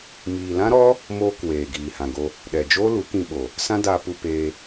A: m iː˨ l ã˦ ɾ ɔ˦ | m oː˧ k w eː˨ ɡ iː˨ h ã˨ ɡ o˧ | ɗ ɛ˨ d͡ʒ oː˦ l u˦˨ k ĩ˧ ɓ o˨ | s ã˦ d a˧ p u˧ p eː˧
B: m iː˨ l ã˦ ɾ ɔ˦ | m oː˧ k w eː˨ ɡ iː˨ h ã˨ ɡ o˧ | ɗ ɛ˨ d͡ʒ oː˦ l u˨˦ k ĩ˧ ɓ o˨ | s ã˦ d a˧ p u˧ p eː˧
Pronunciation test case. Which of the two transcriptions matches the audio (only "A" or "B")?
B